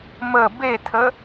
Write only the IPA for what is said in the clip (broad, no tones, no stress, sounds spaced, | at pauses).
m ə b e tʰ ə